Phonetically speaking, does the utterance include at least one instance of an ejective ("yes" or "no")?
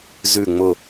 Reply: no